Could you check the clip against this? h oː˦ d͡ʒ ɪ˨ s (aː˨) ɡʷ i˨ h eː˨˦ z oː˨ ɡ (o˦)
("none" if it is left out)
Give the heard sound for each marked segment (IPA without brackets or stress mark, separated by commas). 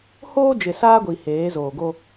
aː˦, o˦